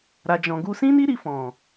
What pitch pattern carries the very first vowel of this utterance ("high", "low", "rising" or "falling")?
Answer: low